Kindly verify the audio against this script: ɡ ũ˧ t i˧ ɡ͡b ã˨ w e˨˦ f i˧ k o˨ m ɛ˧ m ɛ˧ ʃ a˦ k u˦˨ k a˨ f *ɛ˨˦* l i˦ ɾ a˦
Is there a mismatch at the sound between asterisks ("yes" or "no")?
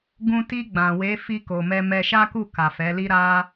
no